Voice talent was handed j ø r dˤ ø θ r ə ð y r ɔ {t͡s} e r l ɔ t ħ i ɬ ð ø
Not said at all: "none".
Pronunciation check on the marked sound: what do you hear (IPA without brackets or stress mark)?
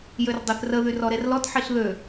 ɾ